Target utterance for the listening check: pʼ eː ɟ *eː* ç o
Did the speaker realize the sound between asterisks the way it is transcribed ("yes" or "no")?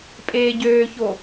no